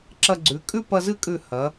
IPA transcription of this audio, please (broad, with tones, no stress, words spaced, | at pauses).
ǁɐ˧ɡ͡ǀʉ˩˧ kʼʉ˥˧pɐ˧zɨ˥˧kʼʉ˧˩ hɐ˩˧